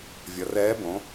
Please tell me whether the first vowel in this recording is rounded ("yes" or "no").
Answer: no